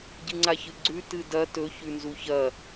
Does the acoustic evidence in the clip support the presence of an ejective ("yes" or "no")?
no